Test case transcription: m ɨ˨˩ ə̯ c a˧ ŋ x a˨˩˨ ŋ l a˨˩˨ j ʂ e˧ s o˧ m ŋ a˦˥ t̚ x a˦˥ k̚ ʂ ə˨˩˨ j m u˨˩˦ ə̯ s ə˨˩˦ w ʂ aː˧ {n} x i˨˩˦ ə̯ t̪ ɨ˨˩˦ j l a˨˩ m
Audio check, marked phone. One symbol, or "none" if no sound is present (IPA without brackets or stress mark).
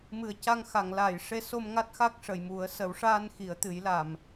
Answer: n